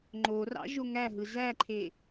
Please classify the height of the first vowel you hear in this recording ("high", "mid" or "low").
mid